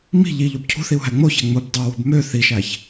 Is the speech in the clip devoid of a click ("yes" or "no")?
yes